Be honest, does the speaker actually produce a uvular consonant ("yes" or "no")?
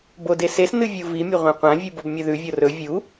yes